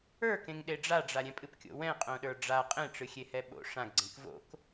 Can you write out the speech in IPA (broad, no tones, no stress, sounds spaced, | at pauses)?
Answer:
ə˞ k ẽ ŋ ɗ e ɖ͡ʐ a ɖ͡ʐ a ɾʲ ɛ̃ pʼ ɨ p kʲ o̰ w ɛ̃ qʼ õ ɗ ə˞ ɖ͡ʐ a qʼ ẽ ʈ͡ʂ ɨ xʲ e h ɛ ɓ o̰ ʂ ã ɡ ɡ͡ǀ ẽ k v o̰ k